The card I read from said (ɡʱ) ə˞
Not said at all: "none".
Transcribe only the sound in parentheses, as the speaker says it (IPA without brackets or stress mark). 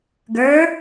ɡ